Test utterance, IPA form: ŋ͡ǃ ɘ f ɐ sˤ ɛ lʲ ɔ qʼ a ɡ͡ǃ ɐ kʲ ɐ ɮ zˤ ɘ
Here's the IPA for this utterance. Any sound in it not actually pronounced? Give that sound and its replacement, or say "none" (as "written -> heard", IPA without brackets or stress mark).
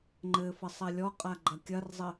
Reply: ɮ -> r